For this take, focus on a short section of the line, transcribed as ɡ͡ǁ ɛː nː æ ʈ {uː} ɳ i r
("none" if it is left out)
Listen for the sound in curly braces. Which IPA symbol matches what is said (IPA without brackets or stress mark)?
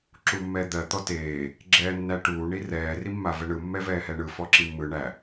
uː